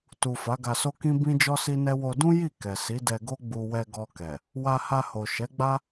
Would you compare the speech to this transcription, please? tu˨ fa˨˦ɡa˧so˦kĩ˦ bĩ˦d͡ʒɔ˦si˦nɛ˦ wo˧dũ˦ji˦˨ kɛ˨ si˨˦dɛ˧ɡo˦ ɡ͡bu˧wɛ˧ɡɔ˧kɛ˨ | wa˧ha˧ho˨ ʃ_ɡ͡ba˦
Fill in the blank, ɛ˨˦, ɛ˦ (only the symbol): ɛ˨˦